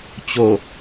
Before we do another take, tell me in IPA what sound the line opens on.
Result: t͡ɕ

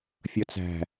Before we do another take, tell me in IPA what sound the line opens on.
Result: fʲ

